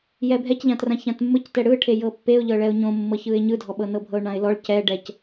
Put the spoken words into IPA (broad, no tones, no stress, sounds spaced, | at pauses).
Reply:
j ɛ bʱ ɛ c ʎ ã t r ã ç ã t mː ɯ c t ɛ ɽ ɯ ʈʰ e j ɤ pː e ʊ̯ ʎ ɤ ɭ ɛ ʊ̯ ɲ õ mː ɤ ç ɯ ɪ̯ ɲ ɯ dʱ ɔ ɓ ɤ n ɤ bʱ ɤ ʊ̯ ɳ ã ɪ̯ l ɔ ɭ c ɛ ɖ ɛ c